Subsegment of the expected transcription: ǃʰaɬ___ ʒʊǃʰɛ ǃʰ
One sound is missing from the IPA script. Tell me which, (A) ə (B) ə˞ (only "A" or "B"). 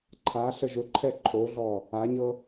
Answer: A